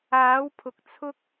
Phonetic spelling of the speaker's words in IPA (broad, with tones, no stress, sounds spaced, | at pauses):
aː˨˥ w pʰ ʊ˨ k̚ t͡sʰ ʊ˥ k̚